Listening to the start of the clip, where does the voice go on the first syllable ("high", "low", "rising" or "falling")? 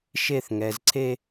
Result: high